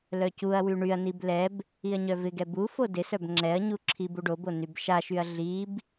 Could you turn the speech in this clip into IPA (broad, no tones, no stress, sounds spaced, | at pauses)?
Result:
l œ c u ɐ̯ w y ɳ y ɐ̯ n i b l ɛ b | i ɐ̯ ɲ œ v ɪ ɡ ɛ b u f o d ɪ s œ b ŋ͡ǁ ɛ ɐ̯ ɲ u ǁʰ i b u ɖ o b o n y b ʃ a ʃ y ɐ̯ ɮ i b